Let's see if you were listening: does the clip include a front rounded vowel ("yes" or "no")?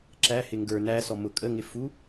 no